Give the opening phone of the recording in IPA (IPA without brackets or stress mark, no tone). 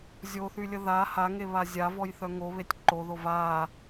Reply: zʲ